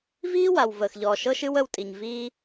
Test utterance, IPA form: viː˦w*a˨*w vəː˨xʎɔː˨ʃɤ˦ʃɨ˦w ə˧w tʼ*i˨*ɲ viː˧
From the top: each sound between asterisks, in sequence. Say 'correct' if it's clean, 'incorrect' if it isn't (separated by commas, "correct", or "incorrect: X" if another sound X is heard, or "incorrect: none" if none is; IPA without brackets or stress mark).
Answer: correct, correct